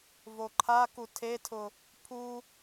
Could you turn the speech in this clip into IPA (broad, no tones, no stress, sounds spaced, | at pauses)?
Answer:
v o ǃʰ a k u tʰ e tʰ ʊ | pʰ u